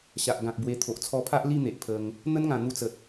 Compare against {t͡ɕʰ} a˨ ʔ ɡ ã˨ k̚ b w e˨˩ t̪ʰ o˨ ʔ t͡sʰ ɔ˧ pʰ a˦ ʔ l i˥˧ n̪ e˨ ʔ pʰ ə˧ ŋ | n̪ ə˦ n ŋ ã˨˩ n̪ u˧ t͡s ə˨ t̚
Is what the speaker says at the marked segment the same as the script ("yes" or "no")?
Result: no